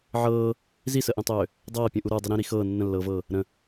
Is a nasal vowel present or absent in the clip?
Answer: present